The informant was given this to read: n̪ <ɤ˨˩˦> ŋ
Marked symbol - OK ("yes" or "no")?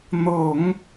yes